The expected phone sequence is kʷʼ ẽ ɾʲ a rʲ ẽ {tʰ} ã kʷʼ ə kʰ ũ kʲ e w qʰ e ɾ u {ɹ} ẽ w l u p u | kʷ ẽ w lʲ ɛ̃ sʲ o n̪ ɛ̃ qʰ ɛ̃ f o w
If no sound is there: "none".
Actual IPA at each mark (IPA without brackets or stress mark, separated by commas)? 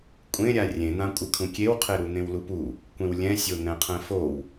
n̪, n̪